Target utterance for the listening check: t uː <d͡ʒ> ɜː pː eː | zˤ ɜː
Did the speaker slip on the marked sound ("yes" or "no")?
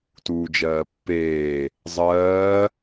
no